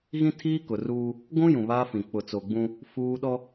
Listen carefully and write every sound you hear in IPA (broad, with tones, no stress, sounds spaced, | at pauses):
ɣ ĩ˦ tʰ iː˦ k ʊ˨ r uː˦ | ɡʷ ũ˦ j ũ˨ β aː˦ f ĩ˨ k͡p ʊ˨ t͡s o˨ ɡ͡b ũ˦ | f uː˦ ɗ ɔ˦